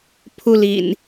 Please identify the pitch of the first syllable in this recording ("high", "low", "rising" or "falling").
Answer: high